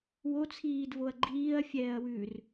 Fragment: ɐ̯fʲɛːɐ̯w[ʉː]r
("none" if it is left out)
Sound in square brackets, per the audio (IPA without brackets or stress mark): ʉː